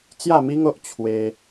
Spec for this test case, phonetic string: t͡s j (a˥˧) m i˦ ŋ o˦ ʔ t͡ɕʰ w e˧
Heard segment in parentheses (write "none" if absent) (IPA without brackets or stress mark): a˥˧